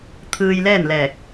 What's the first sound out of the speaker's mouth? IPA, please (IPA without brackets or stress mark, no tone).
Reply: t̪ʰ